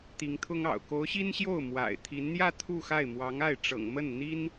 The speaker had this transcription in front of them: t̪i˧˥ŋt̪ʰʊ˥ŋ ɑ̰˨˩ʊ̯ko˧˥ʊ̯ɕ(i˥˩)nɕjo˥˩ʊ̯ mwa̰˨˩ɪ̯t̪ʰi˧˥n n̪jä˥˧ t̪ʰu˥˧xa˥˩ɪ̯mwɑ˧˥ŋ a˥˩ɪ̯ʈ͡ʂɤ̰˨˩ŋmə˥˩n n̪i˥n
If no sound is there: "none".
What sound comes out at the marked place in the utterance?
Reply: i˥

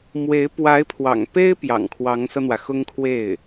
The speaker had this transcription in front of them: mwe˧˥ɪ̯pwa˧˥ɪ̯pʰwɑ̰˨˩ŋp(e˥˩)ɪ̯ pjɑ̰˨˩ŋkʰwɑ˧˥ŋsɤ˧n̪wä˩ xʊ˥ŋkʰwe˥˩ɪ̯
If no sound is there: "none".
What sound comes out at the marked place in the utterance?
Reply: e˥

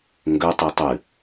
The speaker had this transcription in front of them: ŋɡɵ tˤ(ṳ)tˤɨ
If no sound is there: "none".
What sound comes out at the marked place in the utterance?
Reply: u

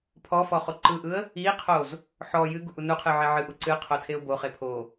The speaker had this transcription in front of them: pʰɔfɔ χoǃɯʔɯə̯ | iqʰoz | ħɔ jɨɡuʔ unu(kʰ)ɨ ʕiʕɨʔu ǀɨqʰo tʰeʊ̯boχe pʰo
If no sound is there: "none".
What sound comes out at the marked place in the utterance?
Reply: qʰ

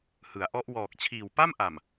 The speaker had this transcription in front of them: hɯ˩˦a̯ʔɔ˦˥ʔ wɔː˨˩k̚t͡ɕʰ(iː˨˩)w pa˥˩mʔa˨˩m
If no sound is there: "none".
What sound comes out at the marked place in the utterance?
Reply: iː˨˩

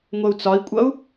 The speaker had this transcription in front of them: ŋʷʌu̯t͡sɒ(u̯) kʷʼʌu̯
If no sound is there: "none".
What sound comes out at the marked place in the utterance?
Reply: i̯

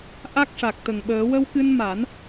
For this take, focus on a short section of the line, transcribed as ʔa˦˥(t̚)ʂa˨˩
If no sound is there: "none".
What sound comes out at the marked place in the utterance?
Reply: k̚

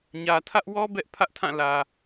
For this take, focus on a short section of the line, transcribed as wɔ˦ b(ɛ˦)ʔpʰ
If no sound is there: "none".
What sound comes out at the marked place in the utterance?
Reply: ɛ˦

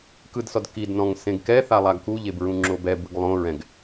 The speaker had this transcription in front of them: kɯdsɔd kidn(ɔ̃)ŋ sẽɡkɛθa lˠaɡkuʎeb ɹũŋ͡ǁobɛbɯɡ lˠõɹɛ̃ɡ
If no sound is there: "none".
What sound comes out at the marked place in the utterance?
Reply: ɔ̃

